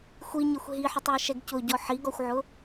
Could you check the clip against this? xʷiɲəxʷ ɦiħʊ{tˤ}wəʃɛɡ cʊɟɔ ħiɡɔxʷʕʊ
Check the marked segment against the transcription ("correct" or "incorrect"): correct